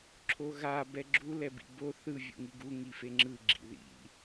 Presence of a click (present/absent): present